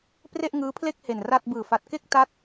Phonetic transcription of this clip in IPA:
p r e˥˩ ʔ ŋ ɯː˦˥ pʰ l e˥˩ k̚ h e˨˩ n r a˥˩ t̚ b ɯː˨˩ f a˨˩ t̚ k e˥˩ k̚ t a˥˩ t̚

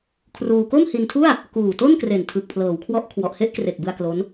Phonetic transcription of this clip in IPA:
kʰ r uː˧ k o˥˩ m h i˧ n tʰ u˥˩ a̯ | k uː˨˩ t o˥˩ n k r e˨˩ n tʰ ɯ˨˩ k̚ pʰ l ɤː˩˦ w kʰ w ɔ˦˥ ʔ kʰ w ɔ˨˩ ʔ h e˥˩ ʔ k r e˨˩ k̚ b ɯ˧ a̯ k l o˦˥ n

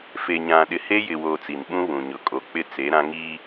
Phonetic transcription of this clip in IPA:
f e˨ ɲ ã˨ ɗ ɪ˨ h e˦ j ɪ˨ w oː˨ t͡s i˨ n ɓ ũ˦ β ũ˨ ɲ ʊ˨ kʼ o˨ k͡p ɪ˦ t͡s e˨˦ ɾ ã˦ ŋ i˦

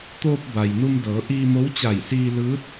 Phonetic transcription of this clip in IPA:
t̪ oː˧ p̚ b a˩ j n u˧ m d ɤː˩˧ ʔ iː˧ m o˧˥ w t͡ɕ a˧˩ j s iː˧ l ɯː˧˥ t̚

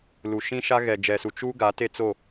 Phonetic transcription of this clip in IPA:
l u˨ ʃ ĩ˦ ʃ a˦ ɣ ɛ˨ d͡ʒ ɛ˨ s u˨ t͡ʃ u˦ ɡ a˨˦ t e˦ t͡s o˦˨

